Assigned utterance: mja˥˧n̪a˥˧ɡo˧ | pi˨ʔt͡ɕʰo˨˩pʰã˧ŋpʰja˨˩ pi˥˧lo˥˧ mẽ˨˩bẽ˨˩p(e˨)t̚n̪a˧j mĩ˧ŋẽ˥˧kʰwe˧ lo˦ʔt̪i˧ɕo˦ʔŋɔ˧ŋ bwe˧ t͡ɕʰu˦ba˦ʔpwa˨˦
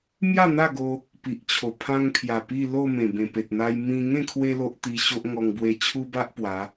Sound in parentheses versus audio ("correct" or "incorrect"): correct